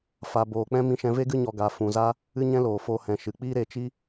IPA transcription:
f a˨ b oː˨ k͡p ɛ̃˦ m ĩ˧ ʃ ɛ̃˧ v e˦ ɡ ɨ˦ ɲ ɔ˧ ɡ a˨˦ f ũ˨ z a˦ | ɨ˦ ɲ ɛ̃˦ l oː˨ f o˧ h ɛ̃˨ ʃ ɨ˨ k͡p iː˦ ɾ e˧ t͡ʃ i˦

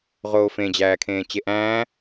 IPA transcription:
ʁ oː f ẽ d͡ʑ æː kʰ ẽː t͡ɕ e ʔ æ̃ː

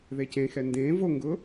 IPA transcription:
ð e c ẽ x ɛ n d ẽ v o ŋ ɡ ʊ

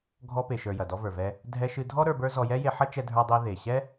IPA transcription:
ɡʱ ɔ˧ p e˩ ʃ ə˞˩ j ɐ˩ d ɔ˧ v ə˞˩ v ɛ˧ | dʱ ɛ˧ ʃ ɨ˧ dʱ ɔ˥ ɾ ə˞˧ b ə˞˥ z ɔ˧ j ɛ˥ j e˧ ħ ɐ˥ t͡ʃ ɛ˧ dʱ ə˞˧ dˤ e˧ ð e˩ ɕ ɛ˥

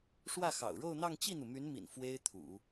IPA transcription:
ʂ w ä˥˩ x ɑ̰˨˩ ʊ̯ ɻ o˥˧ ʊ̯ n̪ ɑ˥˧ ŋ t͡ɕ i˥˩ n̪ u˩ m y˧˥ n m ḭ˨˩ n f w e˥ ɪ̯ t̪ʰ ṵ˨˩˦

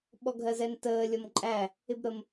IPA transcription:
ɓ ɔ ɡʱ ɜ z ɛ n t əː lʲ ʌ m ǃʼ æ | ɪ b ɾ ə m

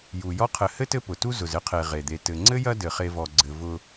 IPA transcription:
j u˩ j ɔ˥ qʰ ɘ˨ h ɘ˥ t ɘ˦ p ʊ˩ t u˦ z ʊ˩ z ɘ˥ qʰ e˩ ʁ e˩ d̪ e˨ t ɘ˩ ŋ͡ǀ ɘ˥ j ɐ˦ d ɘ˩ χ e˨ v ɔ˩ ɡ͡ǀ ɘ˩ v ʊ˨

